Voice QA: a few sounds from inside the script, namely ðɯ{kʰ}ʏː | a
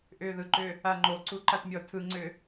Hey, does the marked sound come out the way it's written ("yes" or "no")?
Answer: no